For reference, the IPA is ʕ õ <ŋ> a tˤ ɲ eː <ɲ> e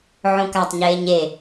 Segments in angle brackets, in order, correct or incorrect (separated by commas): incorrect, correct